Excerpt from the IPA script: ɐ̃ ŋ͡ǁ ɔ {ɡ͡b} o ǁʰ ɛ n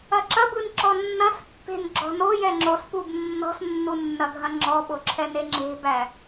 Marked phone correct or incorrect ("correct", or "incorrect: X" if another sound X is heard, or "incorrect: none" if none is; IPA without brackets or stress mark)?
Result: incorrect: ɓ